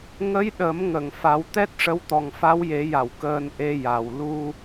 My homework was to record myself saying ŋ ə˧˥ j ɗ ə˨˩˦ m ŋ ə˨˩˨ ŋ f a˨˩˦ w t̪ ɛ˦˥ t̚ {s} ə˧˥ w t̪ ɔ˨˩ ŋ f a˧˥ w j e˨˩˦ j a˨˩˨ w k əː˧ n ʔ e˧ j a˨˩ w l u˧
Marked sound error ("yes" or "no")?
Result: yes